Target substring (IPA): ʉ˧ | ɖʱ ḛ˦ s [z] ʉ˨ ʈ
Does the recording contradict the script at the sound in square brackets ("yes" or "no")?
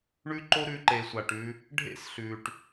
yes